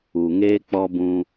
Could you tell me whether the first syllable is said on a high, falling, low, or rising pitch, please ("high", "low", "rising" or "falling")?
low